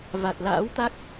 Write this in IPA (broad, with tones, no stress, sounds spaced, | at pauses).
v a˨˩ t̚ l a̰ː˧˥ w t̪ a˦˥ k̚